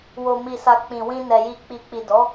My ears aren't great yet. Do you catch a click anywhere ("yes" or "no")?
no